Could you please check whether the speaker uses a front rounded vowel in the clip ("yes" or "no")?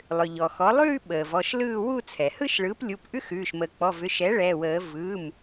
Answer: yes